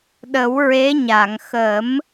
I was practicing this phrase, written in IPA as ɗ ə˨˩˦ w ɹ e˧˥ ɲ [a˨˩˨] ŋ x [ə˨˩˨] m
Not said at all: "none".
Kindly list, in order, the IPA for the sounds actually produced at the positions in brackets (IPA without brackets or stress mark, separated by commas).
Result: a˨˩˨, ə˨˩˦